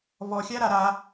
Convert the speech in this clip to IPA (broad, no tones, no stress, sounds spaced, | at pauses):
v ɔ xʲ a ɾ a ɾ a